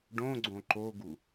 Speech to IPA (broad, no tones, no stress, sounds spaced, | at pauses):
ɖ õ ɡ͡ǀ õ ǃ o ɡ u